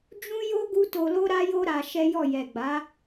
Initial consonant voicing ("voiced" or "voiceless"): voiced